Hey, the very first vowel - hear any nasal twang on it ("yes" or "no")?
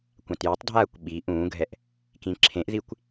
yes